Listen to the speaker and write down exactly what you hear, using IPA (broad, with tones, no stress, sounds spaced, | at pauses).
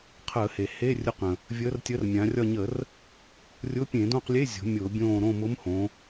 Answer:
qʰ əː˧˩˧ h e˩ h e˧˥˧ rʲ ʊ˧˥ q ə̃˩ | vʲ əː˧˥ r tʲ ə˧˥ r mʲ ã˩˧ rʲ ɒ˦˨ ɲ ə˧˩˧ r | rʲ ʊ˧˥˧ pʲ ẽ˧˩˧ d õ˦˨ q lʲ e˧˥˧ zʲ o̤˩˧ mʲ ʊː˧˩˧ bʲ õː˦˨ ɾ õ˦˨ m ʊː˧˥ m h õ˩˧